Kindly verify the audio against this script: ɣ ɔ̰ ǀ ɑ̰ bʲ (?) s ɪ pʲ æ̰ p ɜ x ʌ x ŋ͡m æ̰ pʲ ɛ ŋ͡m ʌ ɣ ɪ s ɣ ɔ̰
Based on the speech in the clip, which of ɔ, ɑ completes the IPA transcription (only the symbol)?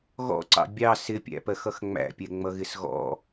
ɑ